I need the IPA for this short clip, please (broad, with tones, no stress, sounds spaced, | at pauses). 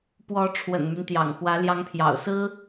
p w ɔ˧˥ ʈ͡ʂʰ w ə̰˨˩ n m y˦ n t̪ j ɑ̰˨˩ ŋ x w ä˧˥ l j ɑ˧˥ ŋ pʰ j ɑ̰˨˩ ʊ̯ s ɹ̩˥